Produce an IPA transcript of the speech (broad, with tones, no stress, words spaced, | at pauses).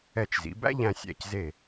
ɛ˧˩t͡ʃzḭ˩˧bæ̰˥ ʎæ̃˧sʲæ̰˧˩cze˧˩